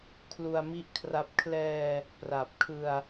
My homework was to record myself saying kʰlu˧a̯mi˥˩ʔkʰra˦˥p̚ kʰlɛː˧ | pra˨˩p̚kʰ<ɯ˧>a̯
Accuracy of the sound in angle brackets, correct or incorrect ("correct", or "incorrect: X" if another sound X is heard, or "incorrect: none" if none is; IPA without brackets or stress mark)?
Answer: correct